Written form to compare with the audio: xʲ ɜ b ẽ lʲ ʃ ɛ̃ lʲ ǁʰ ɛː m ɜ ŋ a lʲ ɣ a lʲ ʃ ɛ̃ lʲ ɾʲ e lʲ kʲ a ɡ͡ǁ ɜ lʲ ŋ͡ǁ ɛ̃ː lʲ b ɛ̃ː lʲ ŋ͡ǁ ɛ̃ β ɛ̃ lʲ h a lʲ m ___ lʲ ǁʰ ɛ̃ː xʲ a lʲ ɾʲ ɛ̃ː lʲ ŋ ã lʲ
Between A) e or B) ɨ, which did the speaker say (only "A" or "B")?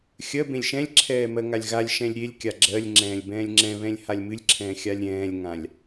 B